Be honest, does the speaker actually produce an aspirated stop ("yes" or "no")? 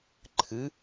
yes